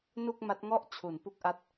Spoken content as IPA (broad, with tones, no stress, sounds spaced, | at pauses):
n u˥˩ k̚ m a˦˥ t̚ ŋ ɔ˥˩ ʔ t͡ɕʰ u˩˦ n p u˦˥ k̚ ʔ a˦˥ t̚